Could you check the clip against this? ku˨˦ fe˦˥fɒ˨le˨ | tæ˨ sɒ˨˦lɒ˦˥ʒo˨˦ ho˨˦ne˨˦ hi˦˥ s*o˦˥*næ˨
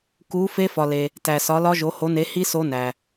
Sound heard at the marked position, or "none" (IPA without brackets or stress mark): o˦˥